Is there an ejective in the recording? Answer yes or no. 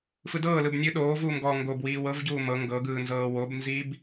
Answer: no